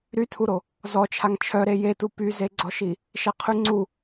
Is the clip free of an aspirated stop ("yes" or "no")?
no